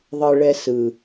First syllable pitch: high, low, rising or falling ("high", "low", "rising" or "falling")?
low